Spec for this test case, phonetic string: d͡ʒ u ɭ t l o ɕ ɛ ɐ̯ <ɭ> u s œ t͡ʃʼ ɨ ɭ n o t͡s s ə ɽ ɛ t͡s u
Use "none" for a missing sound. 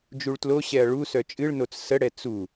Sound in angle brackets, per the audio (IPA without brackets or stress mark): ɭ